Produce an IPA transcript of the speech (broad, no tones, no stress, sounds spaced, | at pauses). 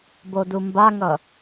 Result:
b o d u m b a ŋ ʌ